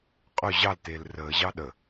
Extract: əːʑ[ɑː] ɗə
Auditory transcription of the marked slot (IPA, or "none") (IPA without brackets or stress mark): ɑ